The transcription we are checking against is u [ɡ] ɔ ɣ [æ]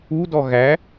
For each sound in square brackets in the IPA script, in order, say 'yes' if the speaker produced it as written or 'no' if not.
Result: no, yes

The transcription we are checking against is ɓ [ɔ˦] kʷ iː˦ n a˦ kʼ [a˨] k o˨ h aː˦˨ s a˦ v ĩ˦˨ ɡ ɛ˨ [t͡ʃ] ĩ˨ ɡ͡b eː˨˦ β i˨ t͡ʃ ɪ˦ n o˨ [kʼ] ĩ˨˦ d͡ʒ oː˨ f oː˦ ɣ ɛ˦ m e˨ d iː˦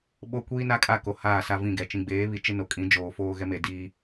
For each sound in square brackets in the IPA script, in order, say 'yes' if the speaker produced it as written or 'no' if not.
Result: no, no, yes, yes

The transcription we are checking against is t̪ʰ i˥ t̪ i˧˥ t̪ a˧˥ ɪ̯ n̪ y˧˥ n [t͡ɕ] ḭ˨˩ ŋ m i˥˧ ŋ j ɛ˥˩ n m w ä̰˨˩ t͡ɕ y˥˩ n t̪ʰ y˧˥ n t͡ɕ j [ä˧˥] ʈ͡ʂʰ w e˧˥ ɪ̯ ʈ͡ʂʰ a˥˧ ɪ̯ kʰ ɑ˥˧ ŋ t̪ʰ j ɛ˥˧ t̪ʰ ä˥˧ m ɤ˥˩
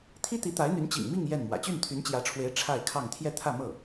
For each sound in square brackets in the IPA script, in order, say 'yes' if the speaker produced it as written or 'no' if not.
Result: yes, yes

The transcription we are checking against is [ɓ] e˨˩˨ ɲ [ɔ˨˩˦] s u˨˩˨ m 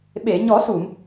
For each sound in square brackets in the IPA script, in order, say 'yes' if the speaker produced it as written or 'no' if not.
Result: yes, yes

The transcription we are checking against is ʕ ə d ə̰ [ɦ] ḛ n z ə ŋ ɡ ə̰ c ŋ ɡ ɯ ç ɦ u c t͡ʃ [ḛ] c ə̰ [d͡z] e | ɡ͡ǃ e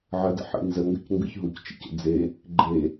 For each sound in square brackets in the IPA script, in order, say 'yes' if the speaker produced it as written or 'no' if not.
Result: no, yes, yes

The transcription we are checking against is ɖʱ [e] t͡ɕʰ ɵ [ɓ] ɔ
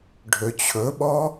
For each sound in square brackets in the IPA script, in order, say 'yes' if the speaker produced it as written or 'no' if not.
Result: no, yes

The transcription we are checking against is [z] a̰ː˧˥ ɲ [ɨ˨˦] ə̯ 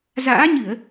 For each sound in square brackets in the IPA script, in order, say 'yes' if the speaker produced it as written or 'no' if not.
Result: yes, no

